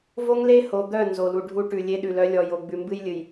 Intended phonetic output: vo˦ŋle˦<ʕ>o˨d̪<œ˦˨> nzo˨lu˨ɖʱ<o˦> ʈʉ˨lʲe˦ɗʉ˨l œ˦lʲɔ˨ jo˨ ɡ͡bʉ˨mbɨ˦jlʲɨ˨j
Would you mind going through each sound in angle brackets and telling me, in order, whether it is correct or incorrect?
incorrect: h, correct, incorrect: u˦

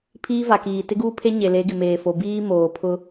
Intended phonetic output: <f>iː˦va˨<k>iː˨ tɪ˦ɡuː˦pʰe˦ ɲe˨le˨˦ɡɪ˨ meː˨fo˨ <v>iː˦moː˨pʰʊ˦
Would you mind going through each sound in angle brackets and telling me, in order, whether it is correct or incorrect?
incorrect: pʰ, correct, incorrect: b

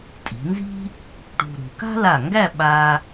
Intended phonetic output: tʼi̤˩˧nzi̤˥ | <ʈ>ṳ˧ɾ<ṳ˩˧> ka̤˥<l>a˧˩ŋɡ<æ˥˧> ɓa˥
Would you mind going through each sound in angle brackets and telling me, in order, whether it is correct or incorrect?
correct, correct, correct, correct

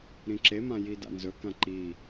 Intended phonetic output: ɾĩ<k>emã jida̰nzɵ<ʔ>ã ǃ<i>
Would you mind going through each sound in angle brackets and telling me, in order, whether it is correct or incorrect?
incorrect: ǁ, incorrect: k, correct

